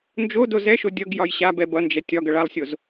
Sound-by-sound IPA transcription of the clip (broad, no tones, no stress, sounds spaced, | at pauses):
n d͡ʒ o d o z ɛ ʃ o dʲ ʌ ɡ j ɒ j ɕ a b ɛ b ʌ n d͡ʒ ɛ tʲ ɒ ɡ ʌ ɭ a lˠ sʲ o z